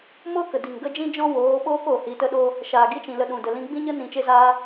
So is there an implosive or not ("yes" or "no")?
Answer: yes